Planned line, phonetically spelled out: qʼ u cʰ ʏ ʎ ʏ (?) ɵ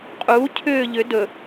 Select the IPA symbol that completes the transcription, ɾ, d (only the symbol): d